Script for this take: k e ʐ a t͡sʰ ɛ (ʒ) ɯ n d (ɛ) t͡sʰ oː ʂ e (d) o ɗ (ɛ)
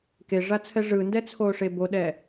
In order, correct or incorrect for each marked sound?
incorrect: ʐ, correct, incorrect: b, correct

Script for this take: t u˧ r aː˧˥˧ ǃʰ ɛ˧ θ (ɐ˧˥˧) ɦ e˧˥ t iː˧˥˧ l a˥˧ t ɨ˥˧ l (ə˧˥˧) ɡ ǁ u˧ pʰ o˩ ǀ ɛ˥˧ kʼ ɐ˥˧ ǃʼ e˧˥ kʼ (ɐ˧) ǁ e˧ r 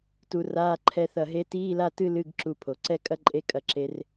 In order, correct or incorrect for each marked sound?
incorrect: ɐ˧˩, incorrect: ɨ˧˥˧, correct

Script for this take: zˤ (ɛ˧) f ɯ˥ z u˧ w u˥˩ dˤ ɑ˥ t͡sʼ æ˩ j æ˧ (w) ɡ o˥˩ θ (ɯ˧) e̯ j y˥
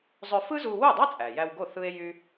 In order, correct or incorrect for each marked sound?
incorrect: ø˧, correct, incorrect: ɯ˥

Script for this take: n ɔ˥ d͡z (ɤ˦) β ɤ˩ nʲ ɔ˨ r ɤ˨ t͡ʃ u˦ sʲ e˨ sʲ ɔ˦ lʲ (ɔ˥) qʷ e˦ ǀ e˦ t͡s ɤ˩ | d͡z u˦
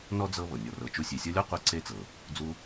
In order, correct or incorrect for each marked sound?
correct, correct

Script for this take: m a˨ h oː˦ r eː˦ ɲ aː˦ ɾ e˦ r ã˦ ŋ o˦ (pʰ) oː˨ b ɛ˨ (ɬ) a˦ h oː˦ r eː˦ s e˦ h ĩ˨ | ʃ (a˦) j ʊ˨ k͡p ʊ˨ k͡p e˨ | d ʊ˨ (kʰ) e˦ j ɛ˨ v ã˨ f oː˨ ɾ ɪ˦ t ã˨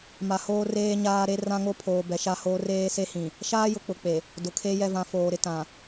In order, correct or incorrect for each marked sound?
correct, incorrect: ʃ, incorrect: aː˦, correct

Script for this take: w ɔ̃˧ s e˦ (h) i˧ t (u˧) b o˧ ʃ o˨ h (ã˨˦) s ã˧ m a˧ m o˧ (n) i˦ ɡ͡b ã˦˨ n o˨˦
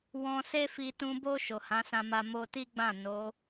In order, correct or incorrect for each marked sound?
incorrect: f, incorrect: ũ˧, correct, incorrect: t

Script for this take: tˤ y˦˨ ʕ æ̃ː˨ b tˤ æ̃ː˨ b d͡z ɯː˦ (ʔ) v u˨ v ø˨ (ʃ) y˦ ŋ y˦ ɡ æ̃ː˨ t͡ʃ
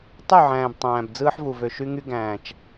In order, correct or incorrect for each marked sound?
incorrect: ħ, correct

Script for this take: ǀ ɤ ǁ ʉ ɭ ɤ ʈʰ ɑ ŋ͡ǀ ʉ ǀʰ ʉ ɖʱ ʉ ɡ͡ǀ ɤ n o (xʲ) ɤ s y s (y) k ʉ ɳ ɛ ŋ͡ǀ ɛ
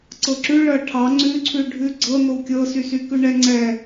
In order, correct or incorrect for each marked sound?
incorrect: kʲ, correct

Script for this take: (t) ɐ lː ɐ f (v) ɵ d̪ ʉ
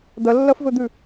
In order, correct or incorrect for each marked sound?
incorrect: d̪, correct

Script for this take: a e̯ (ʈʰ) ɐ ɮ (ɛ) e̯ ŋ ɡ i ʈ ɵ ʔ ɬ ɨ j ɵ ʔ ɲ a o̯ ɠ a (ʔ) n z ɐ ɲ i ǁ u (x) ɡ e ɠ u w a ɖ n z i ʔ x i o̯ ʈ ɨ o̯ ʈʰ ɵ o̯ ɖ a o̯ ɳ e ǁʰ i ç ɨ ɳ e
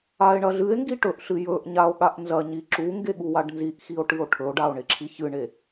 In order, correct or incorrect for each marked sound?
incorrect: ɳ, incorrect: ɨ, correct, incorrect: ŋ

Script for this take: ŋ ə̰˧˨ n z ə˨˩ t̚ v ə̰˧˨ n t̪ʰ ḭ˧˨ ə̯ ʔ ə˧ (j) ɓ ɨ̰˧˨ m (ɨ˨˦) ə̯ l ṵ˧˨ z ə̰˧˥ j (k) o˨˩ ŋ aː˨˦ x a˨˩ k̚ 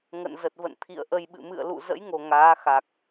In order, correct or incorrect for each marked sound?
correct, incorrect: ɨ̰˧˨, incorrect: ŋ

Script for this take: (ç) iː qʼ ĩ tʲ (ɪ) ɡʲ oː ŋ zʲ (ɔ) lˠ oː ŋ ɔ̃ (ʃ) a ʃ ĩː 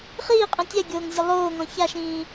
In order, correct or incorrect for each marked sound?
incorrect: χ, incorrect: ɛ, correct, incorrect: ç

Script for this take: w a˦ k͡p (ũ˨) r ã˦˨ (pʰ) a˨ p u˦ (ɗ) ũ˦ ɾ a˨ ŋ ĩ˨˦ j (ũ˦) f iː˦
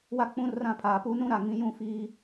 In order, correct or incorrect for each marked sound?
incorrect: ũ˦, correct, incorrect: n, correct

